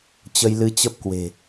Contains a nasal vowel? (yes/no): no